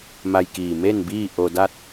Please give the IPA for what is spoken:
ma˧jkiː˧˩ me˥˨nbiː˥˨ ʔo˧da˥˨t̚

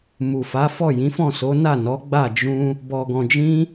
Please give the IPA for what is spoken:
mu˨ fa˨˦fɔ˦˨ jĩ˨˦fɔ̃˦˨ so˨˦ na˦˨nɔ˨˦ɡ͡ba˦˨ d͡ʒũ˧ | bɔ˨ɡɔ̃˨d͡ʒĩ˧

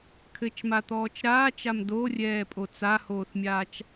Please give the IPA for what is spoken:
kʰɘt͡ʃmat̪ɔːt͡ʃ ɾaːt͡ʃam dorʲɛːpʼo t͡sahoːθmʲaːt͡ʃ

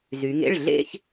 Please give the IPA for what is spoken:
zy˩˧ŋḛ˩˧˩ɭ ɮḛ˥˧ç

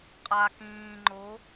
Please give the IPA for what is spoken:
qʼa kĩː ŋ͡ǃo

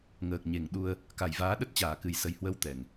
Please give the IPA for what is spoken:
ŋəː˨˩k̚ɲe˨˩ŋ ɗu˧ə̯ | ka˨˩jvaː˨˦ ɗə˦˥t̚ t͡ɕaː˧˩kɨ˨˩jsə˨˩j hwə˨˦w t̪ɛ˨˩ŋ

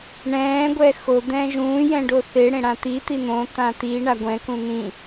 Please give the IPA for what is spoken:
ɳɛ̃ː ɡʷɛxo d̪ɛ̃ʒũː jɛ̃ɖoθe ɽẽɽãt̪i t̪in̪õ t̪ãt̪i ɳaɡʷɛ̃ kũn̪ĩ

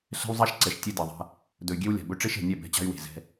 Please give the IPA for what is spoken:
ɬɛ̤˦w zˤa˦ʃǀɛ˨ʃ tʲe˦dɛ˨ðˤa̤˦ | dɵ˨y̯ɡʲe˦wlʲa̤˨bɵ˦ ʈ͡ʂe˦ʃɛ̤˨nʲɛ˦˨ bɛ̤˦˨t͡ɕa̤˦y̯we̤˨ zɛ̤˦

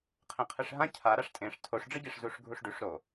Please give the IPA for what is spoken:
qʰẽqʰɨʂɦã cʰa ɾaʂtʼẽʂ tʰoʂɖ͡ʐɨɟeʂ zuʂɡʱuʂɖʉʂ ɾo

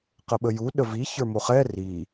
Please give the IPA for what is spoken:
qəɓəju ɗəvi çə˞moχɛ ri

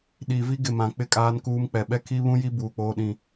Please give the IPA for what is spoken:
ɗi˨vi˦ɡɪ˨ mã˨k͡pɪ˦˨ kʼaː˦nkuː˦mk͡pɛ˨ ɓɛ˦kʰi˦βũ˦ji˦ buː˨k͡poː˦ɗĩ˦˨

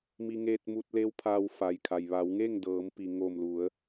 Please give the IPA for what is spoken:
mi˧ŋeː˧t̚mu˧t̚le˧˥w pʰaː˧wfa˩jkʰa˩j ʋa˩˧wŋe˥˨ŋ dɤː˩˧mpi˩ŋo˧˩mlu˩˧ə̯

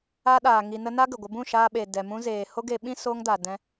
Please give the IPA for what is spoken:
a˧ɗaː˨ ŋi˨nə˧ na˦ɡə˨ɡʷə˧ bũ˦˨ʃaː˧ɓe˨ dɛ˨mũ˧zeː˨ ho˦ɡe˧ɓĩ˦ soː˧ŋda˨ dɛ̃˧

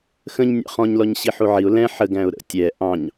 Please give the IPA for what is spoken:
xə̃ɲnʲɑ̰ χɔ̃ɲlɔɲ ɕiħuʕiʊ̯ lɛ̃ ħəɡæ̃ʊ̯ ɾə̰ tʲɛ ʔɑ̃ɲ

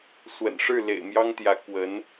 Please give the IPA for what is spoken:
swə̰˨˩nʂɻ̩˥˩ lḛ˨˩ɪ̯mjɑ˥ŋt̪jä˧˥ kwə˧˥n

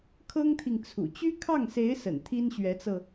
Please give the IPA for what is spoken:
kʰɤ˥ŋt̪ʰi˨ŋ t͡sʰṵ˨˩ t͡ɕy˥kʰɑ˥˩ŋse˧˥ɪ̯ sə̰˨˩nt̪ʰi˥nɕɥɛ˧˥t͡sɤ˧

